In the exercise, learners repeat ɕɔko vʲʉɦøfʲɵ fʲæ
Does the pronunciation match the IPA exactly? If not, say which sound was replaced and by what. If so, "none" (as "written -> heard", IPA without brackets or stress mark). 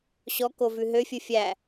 vʲ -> v